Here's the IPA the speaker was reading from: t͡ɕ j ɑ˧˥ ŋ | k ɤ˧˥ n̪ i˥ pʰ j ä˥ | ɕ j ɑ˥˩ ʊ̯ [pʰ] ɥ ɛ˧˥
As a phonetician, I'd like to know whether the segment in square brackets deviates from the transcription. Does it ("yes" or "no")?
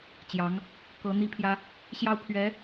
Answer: no